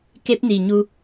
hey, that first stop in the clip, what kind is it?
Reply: plain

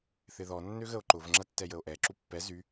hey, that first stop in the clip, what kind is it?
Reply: click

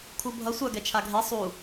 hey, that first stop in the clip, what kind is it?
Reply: aspirated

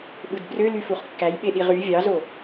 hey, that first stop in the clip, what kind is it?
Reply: implosive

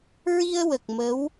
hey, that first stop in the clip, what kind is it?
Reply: plain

